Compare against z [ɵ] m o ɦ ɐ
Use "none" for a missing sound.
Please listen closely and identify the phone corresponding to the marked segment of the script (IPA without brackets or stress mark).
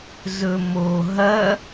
ɵ